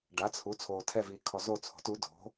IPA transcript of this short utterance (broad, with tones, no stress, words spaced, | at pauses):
ɖa˩˥t͡sʰu˩˥ t͡sʰoː˨tʰɛ˦˨viː˨kʰɔ˨ zo˦˨t͡sʰo̤˩˥t u˩˥ do̤˩˥